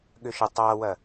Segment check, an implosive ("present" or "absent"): present